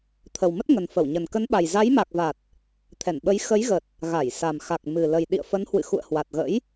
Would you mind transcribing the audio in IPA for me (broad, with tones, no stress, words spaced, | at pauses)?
t̪ʰə˨˩wmə˦˥t̚ŋə˨˩n fə˧˩wɲə˨˩n kə˨˦nɓa˨˩j za˨˦jma˨˩k̚va˨˩t̚ | t̪ʰɛ˧˩nɓə˨˦j xə˨˦jɣə˨˩t̚ | ɣa˧˩jsa˨˩mxa˨˩k̚ mɨ˨˩lə˨˩j ɗḭ˧˨ə̯fə˨˦nhwɨ̰˧˨ xṵ˧˨ə̯hwa˨˩t̚ɣə̰˧˥j